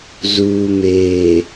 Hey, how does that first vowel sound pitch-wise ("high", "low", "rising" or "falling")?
low